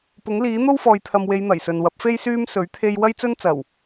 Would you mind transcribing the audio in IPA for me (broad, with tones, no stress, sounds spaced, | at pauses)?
p ʊ˨˥ ŋ l iː˨˥ n̪ o˥ w f ɔː˨ j t̪ʰ ɐ˨ m w e˨˧ j n̪ ɐ˨˩ j s ɵ˨ n w ɐ˨˥ p̚ f e˥ j s yː˥ m s ɵ˨˥ ɥ t̪ʰ e˧ j w ɐ˥ j t͡s ɵ˥ n t͡s ɐ˨˩ w